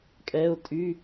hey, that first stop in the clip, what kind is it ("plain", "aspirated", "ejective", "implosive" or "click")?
ejective